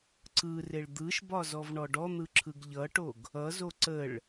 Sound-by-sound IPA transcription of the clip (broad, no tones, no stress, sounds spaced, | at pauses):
ǀ ɯ r e ɭ d̪ ɯ ʃ b ɒ z ɔ v ɳ ɔ ɖ ɔ n̪ ɯ ǁʰ ɯ ɡ ʎ ʌ ʈ o ɡ | ʌ z o ǀ ə ɭ